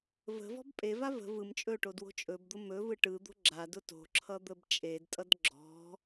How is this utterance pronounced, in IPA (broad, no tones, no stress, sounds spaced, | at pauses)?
v ə̤ v ɔ̤ b pʼ e v a v ə̤ v ɯ m t͡ʃʼ ɵ ʈ o d w o̤ t͡ʃʼ ɵ b d̪ ʊ m ɵ v ɯ ʈ ɯ d̪ o̤ ɡ͡ǁ a d ʊ t o̤ ǁʰ ʌ d̪ ə b t͡ʃʼ e d tʼ ʌ d ɡ͡ǁ ɔ̤